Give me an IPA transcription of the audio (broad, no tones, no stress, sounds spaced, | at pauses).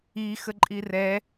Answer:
i x ə ǃʼ i r ɛ